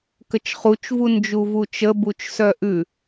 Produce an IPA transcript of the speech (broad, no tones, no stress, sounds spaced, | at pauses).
k ə t͡ʃ χ u t͡ʃ v u n d͡ʒ u v u t͡ʃ ə b u t͡ʃ s œ ʔ ʉ